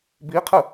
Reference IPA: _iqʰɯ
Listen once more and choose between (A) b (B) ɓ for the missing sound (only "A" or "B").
A